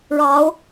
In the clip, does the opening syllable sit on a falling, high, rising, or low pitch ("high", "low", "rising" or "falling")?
rising